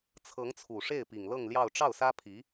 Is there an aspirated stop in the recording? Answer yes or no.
yes